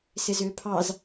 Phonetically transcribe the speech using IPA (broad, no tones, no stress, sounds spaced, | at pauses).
s ɪ z ʏː pʰ ɑ z